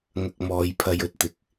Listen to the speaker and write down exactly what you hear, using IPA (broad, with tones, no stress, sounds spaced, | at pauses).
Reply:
ŋ ɐ˧ k̚ m ɔː˨˧ j pʰ ɐ˧ j ɵ˧ t̚ t̪ ɪ˨ k̚